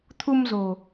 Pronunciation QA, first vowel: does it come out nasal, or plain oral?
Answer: oral